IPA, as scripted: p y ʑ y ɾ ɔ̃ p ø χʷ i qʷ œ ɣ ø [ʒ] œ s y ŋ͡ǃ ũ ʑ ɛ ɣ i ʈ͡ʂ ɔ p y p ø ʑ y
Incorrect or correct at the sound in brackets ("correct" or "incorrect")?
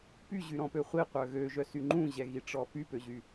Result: correct